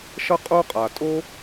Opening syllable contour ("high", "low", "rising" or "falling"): high